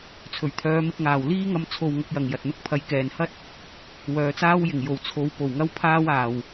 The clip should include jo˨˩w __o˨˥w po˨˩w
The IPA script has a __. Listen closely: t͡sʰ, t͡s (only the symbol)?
t͡sʰ